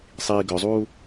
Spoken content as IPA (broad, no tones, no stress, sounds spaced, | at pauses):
sˤ iː ɡ œ zˤ uː